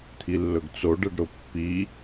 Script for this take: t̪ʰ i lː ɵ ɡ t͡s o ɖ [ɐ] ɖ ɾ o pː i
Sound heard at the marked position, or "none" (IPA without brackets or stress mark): ɐ